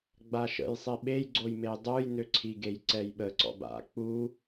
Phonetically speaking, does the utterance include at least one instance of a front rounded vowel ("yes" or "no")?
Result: yes